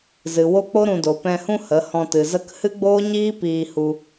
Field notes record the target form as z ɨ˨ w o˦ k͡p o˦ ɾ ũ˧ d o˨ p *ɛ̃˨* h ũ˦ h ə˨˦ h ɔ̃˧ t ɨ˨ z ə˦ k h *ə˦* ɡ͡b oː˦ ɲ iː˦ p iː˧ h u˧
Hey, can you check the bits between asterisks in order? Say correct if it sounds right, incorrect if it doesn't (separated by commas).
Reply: incorrect, incorrect